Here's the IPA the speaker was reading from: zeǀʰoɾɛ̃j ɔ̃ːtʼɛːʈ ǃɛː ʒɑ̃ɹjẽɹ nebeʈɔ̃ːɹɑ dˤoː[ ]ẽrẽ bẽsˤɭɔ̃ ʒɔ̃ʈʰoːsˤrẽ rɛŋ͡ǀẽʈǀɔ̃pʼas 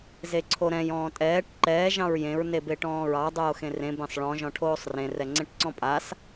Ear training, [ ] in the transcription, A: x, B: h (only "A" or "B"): A